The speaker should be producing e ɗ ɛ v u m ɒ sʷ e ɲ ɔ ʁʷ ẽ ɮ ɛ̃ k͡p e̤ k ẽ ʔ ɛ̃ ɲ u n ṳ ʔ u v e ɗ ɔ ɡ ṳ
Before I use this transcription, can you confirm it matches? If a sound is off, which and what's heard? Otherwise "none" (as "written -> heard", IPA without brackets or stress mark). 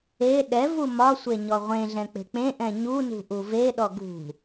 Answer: k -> k͡p